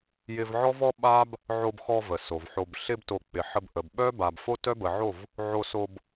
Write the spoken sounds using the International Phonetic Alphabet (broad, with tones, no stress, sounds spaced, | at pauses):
j ɪ˧ v ʕ ɔ˦ v ɔ˦ ɓ a˦ b | ʕ o˧ b x ɔ˧ v ə˨ s o˨ v ħ o˧ b ɬ ɪ˧ b t o˨ k͡p ɪ˨ ħ ə˧ b ʔ ə˨ b ɓ œ˦ b a˨ b f o˦ t œ˦ b ə˨ ʕ o˦˨ v | ʕ o˧ s o˧ b